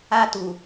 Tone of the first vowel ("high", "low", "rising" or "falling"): high